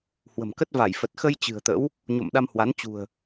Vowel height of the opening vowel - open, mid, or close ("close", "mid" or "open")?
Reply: mid